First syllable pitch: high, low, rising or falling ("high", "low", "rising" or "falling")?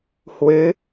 rising